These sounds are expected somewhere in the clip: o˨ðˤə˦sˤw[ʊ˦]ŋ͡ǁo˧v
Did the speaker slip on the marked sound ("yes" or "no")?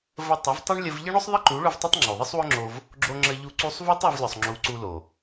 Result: no